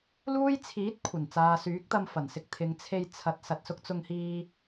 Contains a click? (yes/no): no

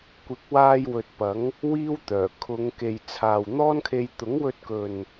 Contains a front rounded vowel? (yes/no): yes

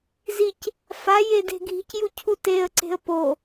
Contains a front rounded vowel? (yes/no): no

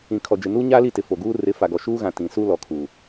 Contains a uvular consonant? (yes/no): no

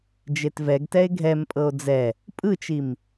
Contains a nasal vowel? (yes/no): no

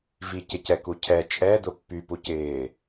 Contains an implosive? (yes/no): no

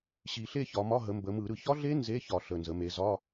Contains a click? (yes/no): no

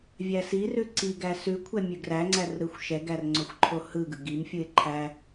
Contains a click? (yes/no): yes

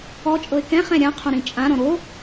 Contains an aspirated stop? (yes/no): yes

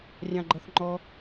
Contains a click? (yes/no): yes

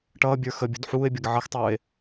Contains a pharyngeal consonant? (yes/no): yes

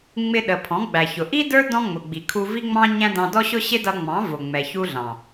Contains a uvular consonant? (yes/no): no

